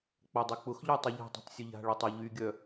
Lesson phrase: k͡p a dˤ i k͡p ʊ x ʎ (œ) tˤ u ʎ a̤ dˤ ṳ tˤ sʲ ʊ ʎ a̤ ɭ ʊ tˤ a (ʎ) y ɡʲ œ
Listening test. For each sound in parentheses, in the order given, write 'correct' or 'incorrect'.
correct, correct

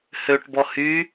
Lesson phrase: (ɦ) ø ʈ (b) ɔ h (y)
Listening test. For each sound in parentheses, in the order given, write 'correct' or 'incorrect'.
incorrect, correct, incorrect

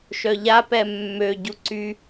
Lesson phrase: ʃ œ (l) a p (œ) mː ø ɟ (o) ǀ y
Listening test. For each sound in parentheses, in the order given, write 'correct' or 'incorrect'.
incorrect, incorrect, incorrect

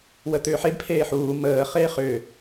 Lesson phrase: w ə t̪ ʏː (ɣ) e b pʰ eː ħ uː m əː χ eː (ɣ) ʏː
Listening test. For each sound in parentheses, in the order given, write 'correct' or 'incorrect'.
incorrect, incorrect

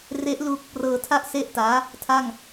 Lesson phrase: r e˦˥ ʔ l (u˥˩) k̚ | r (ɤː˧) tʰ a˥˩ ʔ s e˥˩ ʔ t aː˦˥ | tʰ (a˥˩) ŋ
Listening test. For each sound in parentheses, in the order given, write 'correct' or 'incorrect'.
incorrect, correct, correct

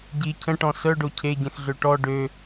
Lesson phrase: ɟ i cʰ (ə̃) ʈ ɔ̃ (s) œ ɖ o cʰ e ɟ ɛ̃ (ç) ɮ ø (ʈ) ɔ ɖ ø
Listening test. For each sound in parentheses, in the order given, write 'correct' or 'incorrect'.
correct, correct, incorrect, correct

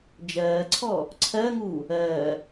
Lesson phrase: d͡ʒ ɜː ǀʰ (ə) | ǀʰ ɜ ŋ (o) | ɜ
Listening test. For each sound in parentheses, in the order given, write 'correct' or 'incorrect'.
incorrect, incorrect

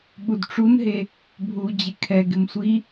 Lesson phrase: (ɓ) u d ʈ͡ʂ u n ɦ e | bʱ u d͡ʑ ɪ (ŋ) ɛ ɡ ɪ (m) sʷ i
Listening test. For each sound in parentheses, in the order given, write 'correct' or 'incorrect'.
correct, incorrect, correct

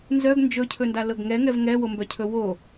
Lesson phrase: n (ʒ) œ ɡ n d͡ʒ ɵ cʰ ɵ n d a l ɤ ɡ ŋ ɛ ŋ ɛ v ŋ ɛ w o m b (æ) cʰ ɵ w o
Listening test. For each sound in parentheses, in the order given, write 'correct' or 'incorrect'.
incorrect, incorrect

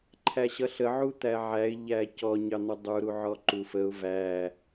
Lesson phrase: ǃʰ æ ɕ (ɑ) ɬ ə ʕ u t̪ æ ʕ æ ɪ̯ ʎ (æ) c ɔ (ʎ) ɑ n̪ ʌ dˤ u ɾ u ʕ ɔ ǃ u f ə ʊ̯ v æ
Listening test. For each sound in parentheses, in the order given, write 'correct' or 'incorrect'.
incorrect, correct, incorrect

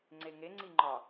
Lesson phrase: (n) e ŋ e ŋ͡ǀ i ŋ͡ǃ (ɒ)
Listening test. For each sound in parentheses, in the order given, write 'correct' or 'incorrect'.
incorrect, correct

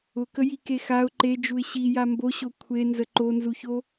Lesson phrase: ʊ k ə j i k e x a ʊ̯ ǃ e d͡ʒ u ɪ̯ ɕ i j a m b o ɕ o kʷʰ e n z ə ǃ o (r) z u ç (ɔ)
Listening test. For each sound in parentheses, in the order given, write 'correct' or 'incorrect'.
incorrect, incorrect

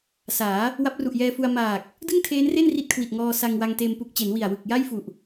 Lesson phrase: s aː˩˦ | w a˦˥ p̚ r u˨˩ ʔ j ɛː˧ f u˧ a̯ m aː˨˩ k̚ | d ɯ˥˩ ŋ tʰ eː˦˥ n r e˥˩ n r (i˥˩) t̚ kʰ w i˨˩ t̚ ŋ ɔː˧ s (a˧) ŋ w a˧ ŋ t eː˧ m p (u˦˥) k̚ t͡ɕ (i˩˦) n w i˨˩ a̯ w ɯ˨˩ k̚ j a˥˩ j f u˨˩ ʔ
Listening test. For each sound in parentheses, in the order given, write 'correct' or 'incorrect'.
correct, correct, incorrect, incorrect

